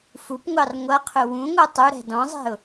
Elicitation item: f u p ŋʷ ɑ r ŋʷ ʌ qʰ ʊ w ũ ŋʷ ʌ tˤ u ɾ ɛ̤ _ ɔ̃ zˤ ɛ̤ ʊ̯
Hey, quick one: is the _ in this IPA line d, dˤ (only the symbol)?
d